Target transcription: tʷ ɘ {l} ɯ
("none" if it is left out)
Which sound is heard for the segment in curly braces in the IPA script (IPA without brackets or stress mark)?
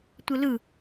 l